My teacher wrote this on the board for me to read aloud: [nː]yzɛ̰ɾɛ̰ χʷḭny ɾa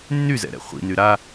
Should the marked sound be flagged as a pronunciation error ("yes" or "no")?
no